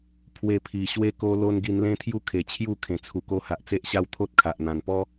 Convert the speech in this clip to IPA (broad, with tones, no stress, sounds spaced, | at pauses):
pʰ w e˧ pʰ i˨˩ ɕ w e˦ k o˦ l o˦ n ɡ i˧ n l ẽ˦ t̪ʰ j u˥˧ kʰ e˨˩ t͡ɕʰ j u˥˧ kʰ ẽ˨˩ t͡sʰ u˨˩ k o˧ h a˨ ʔ t͡s e˦ ʔ ɕ a˥˧ w t̪ʰ o˦ t̚ kʰ a˨ ʔ n̪ ã˨˩ n p ɔ˦